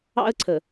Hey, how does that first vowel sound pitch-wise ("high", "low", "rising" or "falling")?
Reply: high